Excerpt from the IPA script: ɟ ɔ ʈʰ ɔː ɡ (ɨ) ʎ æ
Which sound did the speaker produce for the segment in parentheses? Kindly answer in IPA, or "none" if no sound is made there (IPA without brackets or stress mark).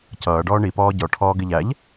ɪ